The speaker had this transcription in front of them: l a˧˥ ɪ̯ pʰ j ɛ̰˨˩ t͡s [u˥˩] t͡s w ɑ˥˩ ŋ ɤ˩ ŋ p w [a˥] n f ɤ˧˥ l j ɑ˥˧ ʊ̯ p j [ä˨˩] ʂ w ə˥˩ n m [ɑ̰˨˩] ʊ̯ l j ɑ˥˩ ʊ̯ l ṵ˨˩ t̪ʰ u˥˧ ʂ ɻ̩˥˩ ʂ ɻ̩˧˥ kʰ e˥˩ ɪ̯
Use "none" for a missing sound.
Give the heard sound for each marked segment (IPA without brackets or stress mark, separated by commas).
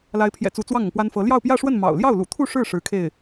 u˧˥, a˥, ä˥˧, ɑ̰˨˩